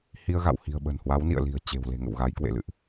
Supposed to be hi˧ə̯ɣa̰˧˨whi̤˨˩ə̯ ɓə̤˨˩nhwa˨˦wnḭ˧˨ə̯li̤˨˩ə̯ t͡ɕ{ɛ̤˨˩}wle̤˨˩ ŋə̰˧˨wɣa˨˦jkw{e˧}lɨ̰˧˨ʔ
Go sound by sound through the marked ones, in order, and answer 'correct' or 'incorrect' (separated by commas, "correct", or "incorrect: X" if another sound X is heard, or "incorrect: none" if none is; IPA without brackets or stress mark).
incorrect: e̤˨˩, incorrect: ḛ˧˨